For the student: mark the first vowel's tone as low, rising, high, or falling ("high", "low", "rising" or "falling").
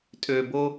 low